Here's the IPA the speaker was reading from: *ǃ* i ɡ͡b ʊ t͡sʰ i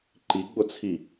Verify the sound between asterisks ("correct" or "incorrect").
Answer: correct